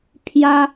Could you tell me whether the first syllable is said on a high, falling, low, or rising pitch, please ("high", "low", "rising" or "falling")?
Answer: high